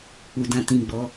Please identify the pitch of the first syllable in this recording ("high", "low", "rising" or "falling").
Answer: low